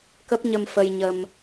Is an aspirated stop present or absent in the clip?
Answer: absent